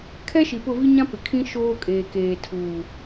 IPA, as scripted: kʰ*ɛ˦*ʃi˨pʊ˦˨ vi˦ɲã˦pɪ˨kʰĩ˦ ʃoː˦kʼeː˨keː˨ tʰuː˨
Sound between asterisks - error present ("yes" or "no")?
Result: no